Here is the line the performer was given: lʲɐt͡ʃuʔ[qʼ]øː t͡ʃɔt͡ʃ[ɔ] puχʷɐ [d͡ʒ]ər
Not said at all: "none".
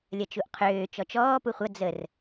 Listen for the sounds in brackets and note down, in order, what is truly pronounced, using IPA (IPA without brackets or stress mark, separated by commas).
qʰ, ɔː, d͡z